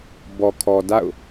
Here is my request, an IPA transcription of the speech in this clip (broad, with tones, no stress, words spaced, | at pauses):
bɔ˨kʰɔ˨ da̰˦˨ʊ̯